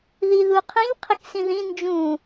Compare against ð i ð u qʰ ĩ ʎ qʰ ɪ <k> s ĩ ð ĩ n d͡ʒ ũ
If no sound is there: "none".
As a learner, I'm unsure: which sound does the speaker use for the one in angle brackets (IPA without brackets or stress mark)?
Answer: k